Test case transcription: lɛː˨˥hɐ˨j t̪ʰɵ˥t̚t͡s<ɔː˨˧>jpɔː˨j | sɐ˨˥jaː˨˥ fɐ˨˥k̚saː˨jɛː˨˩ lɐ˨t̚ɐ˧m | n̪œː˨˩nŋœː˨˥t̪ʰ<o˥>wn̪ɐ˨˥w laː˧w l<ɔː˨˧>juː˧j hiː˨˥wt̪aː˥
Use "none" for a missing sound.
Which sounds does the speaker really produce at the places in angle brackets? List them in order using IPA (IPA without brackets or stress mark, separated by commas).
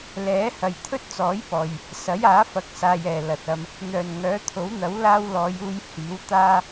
ɔː˨˥, o˨˥, ɔː˨˧